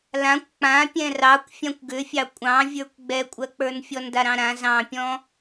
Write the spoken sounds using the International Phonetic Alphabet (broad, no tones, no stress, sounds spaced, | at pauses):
l ã kʷ k͡p ã pʲ ɛ̃ r ɑ kʷ fʲ ã kʷ ɡ ʏ fʲ ɑ kʷʼ ɑ̃ vʲ ə˞ kʷ ɡ͡b ɛ kʷʼ ɜ k͡p ə˞ n fʲ ɔ n d a ɾ ɑ̃ ɾ ã z ɑ̃ pʲ ɔ̃